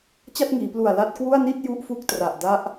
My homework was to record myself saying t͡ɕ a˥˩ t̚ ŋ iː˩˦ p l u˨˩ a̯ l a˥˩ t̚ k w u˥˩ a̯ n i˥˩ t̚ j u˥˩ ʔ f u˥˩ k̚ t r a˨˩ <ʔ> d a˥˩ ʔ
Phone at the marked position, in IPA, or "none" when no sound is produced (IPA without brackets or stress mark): ʔ